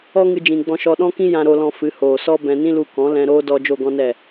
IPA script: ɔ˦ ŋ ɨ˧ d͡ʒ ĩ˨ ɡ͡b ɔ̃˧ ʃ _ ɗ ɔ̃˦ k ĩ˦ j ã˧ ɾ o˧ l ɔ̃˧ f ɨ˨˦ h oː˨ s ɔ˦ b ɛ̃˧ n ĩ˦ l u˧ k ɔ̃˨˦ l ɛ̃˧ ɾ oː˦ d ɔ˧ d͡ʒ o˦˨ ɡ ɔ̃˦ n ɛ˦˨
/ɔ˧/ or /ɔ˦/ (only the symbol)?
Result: ɔ˧